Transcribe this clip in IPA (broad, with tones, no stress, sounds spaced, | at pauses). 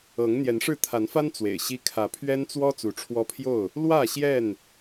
ɤ˨˦ ŋ n̪ j ɛ˨˦ n ʂ ɻ̩˥˨ t̪ʰ a˨˦ n f a˦ n t͡s w ḛ˨˩ ɪ̯ ɕ i˦ kʰ ä˨˦ pʰ ɥ ɛ˦ n t͡s w ɔ˦ t͡s u˨˦ ʈ͡ʂʰ w ɔ˦ pʰ j o˥˨ ʊ̯ | l w ä˥˨ ɕ j ɛ˥˨ n